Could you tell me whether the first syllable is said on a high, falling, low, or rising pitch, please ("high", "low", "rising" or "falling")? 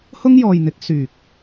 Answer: high